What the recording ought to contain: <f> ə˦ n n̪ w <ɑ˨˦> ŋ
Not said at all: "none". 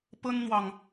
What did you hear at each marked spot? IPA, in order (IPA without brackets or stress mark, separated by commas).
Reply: p, ɑ˨